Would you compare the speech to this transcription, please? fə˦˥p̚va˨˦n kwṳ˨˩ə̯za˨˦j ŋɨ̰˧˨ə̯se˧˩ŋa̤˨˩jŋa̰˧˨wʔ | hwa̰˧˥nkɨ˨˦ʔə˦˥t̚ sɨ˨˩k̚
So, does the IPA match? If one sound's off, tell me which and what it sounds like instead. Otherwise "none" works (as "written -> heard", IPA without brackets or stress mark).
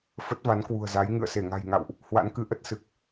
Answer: p̚ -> t̚